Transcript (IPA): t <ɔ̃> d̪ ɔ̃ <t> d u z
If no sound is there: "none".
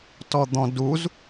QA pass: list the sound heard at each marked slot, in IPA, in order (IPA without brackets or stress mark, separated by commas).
ɔ, none